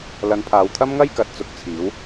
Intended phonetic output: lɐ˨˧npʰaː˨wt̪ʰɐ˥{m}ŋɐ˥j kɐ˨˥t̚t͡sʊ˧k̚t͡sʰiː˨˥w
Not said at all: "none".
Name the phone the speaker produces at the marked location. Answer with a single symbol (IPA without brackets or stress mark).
m